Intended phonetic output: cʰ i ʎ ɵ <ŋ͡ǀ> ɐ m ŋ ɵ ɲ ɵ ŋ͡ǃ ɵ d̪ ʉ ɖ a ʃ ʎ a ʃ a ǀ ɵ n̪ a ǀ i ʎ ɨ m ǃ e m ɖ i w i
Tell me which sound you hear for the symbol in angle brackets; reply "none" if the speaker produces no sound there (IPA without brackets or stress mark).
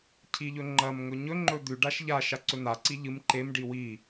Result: ŋ͡ǃ